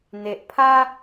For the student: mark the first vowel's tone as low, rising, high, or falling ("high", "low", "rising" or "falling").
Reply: low